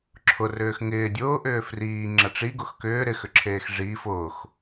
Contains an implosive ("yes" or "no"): no